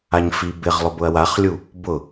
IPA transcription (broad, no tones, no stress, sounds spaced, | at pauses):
a ɲ f i b ɪ ʁ lˠ ʊ b ʊ ɐ̯ w a χ lʲ u | b ʊ